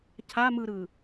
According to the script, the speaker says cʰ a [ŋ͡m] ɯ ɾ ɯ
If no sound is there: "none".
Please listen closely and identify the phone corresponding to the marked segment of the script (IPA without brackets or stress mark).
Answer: m